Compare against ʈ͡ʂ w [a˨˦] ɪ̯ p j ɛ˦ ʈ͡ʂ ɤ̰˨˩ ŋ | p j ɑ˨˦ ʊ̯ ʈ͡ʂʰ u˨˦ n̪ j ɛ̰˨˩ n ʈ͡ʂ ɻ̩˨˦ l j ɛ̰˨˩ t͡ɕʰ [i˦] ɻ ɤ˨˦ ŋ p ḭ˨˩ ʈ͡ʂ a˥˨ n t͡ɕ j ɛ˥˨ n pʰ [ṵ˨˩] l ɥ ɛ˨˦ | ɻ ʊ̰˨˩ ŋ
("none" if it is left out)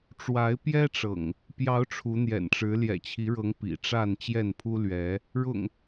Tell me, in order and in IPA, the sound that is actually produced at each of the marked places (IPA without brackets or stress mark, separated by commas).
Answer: a˨˦, i˨˦, u˦